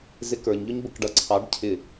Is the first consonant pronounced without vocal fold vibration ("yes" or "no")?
no